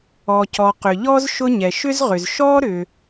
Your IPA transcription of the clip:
ɔ˩cɔ˩ qʏ˩ʎɔ˥z ʃʊ˥ɲɛ˩ ʃʏ˥zʁʏ˩z ʃɔ˥ɾʏ˩

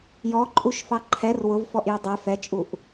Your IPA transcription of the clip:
jɔǃʼuʃfɑ ǃʰɛr wʊvfɔʔjʊ dˤɛ fɛt͡ʃʼuʔ

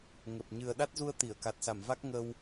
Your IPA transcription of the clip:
ŋə˨˩p̚ ɲɨ˨˩ə̯ɗa˦˥t̚zu˧ə̯ t̪i˧˩ə̯ka˨˩t̚sa˧˩mva˦˥k̚ ŋə˧w

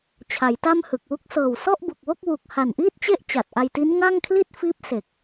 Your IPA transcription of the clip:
t͡ɕʰa˩˦jta˥˩mhɯ˨˩k̚wu˥˩k̚ sɤː˨˩wsɔ˥˩ʔbu˨˩k̚ wo˥˩k̚wu˨˩k̚ ha˨˩nʔiː˥˩t̚t͡ɕe˥˩ʔ t͡ɕa˨˩t̚ʔa˧jti˦˥n ŋa˥˩ŋkʰli˥˩t̚fiː˦˥p̚ se˨˩k̚

